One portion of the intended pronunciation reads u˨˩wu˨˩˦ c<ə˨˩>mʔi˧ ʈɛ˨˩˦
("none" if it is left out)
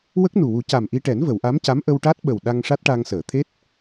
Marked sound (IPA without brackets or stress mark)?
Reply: a˨˩